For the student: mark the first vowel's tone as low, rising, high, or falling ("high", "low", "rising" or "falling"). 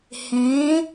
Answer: rising